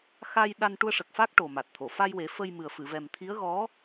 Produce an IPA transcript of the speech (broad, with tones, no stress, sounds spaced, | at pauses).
x a˧ j ɗ a˧ n ʈ u˧ ə̯ ʂ ə˨˩ k̚ f a˦˥ k̚ ʈ o˨˩ m a˨˩ t̚ t̪ʰ o˨˩˨ f a˧ j w e˨˩˦ f ə˧ j m ɨ˨˩ ə̯ f ɨ˨˩˨ v ɛ˨˩ m t̪ʰ i˧˥ ə̯ ɣ ɔ˧˥